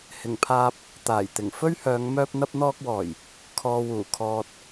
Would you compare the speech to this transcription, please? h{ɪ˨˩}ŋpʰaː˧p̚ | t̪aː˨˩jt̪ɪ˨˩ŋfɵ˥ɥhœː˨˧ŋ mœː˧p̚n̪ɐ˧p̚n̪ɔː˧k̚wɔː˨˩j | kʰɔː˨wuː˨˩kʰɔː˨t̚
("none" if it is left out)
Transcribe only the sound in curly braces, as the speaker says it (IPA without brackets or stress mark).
ɪ˨˩